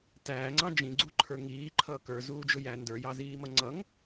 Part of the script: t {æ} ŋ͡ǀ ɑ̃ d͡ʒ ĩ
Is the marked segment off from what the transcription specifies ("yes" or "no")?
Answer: yes